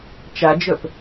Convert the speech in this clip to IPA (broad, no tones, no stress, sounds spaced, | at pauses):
t͡ʃ a d͡ʒ œ p